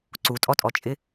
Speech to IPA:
ǀ u tʼ ɔ tʼ ɔ t͡ʃʼ ɪ

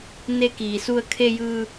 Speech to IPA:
n e˧ k iː˩ s u˧ ə̯ kʰ e˧ j ɯː˧

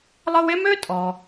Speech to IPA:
lˠ ɤ˦ w e˥ m ø˥ tʼ ɔ˩

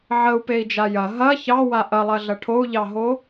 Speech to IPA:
ʕ ə u̯ p e i̯ d͡ʒ a j ɐ ɦ ɐ ç ɑ w a ʔ ɐ lˠ ɐ ɮ ɐ ʈʰ o u̯ ʎ ɑ ɦ o

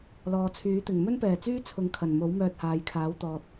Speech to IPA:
l ɔː˨ t͡sʰ yː˨˥ t̪ ɪ˨˩ ŋ m ɵ˥ n p ɛː˨˩ t͡s yː˥ t͡sʰ ʊ˧ ŋ kʰ ɐ˨˩ n m o˨˥ w m œː˧ t̚ h aː˨ j kʰ aː˨˥ w t̪ ɔː˨ t̚

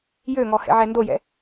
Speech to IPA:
j ø ŋ ɔ h ɛ̰ ʕ ɛ n d o j ɛ̰

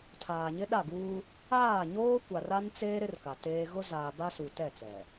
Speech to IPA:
tʰ aː˨ ɲ ɪ˦ ɗ a˦˨ ɡ uː˦ | aː˦˨ ɲ oː˦ kʷ a˨ r a˦ n t͡s eː˦ ɾ ɪ˦ r k a˨ t eː˦ ɣ ʊ˦ z aː˨ b a˦ s u˨ t ɛ˦˨ t͡s ɛ˨

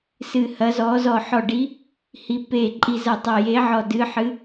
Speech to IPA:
s ɨ˧˩ h ɐ˨˥ z ɔ˨˥ z ɔ˧˩ ħ ɔ˧˩ ɖ i˨˥ | h i˨˥ p e˧˩ ǃʼ i˧˩ z ɐ˧˩ tˤ ɐ˧˩ j e˨˥ ʕ ɔ˧˩ d ɨ˨˥ ħ ɨ˨˥

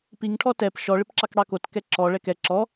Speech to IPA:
p i ŋ ʈʰ ɔ t ɛ p ʃ ɔ ɭ ɪ p ǁ ɑ k ɽ ɑ k o t k ɛ ǁ ɔ ɭ ɛ k ɛ ǁ ɔ

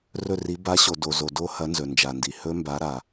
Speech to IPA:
r ɵ˦˨ r i˨˦ b a˨˦ ɕ o˩ d o˩ z o˩ d o˦˥ h ɐ˨˦ n z ɵ˩ n d͡ʒ a˩ n d i˩ h ɵ˦˥ m b a˨˦ ɾ a˩

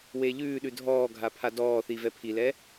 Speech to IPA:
w e ʎ ʉː ɗ ʉ dʱ ɔː ɡʱ a pʰ a d ɔː θ i v ɛ pʰ i l ɛ

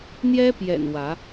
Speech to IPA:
n̪ j ɛ˦ p j ɛ̰˨˩ n w ä˨˦

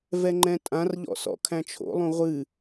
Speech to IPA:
v ɛ ŋ͡ǃ ɛ̃ tʼ ã r ʎ ɔ̰ s ɔ̰ kʰ æ̃ t͡ʃʰ o̰ lˠ ũ ʁʷ ɨ

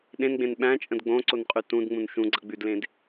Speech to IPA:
ɗ ẽ n ɡ͡b ẽ n ɓ æ̃ t͡ʃʼ ə̃ d ɡ͡b õ ǀ o n qʼ ʉ t ũ d ŋ͡m ũ n ʃ ũ ɡ͡ǀ ʌ ɡ͡b ʉ d l ẽ d

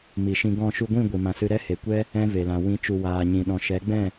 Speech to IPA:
m i˨ ʃ ĩ˧ ɡ ɔ̃˦˨ ʃ u˧ ɡʷ ĩ˦˨ ɡʷ i˨ m ã˨ s ɨ˧ ɾ ɛ˦ h e˨ kʷ ɛ˦ | ɛ̃˦ v e˨ l ã˨ w ĩ˨˦ t͡ʃ u˨ w aː˨ ɲ ĩ˨ ɗ ɔ̃˨ ʃ ɛ˨˦ ɡ͡b ɛ̃˦˨

